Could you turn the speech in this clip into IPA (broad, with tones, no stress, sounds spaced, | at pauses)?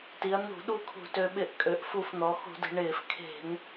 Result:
t i˩˧ ɐ̯ n̪ ṳ˧˩˧ ɗ u˥˩ kʰ ṳ˧˩˧ t ø˩˧ ɓ ɪ˧˩˧ ʔ kʼ ø˩˧ ʔ f u˧˩˧ f n̪ ɔ˩˧ x ṳ˧˩˧ d e̤˩˧ ɳ ɪː˧˩˧ f kʰ e̤˧˩˧ ŋ